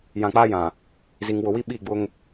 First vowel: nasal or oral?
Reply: nasal